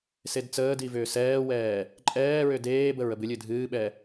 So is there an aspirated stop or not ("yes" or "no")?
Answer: no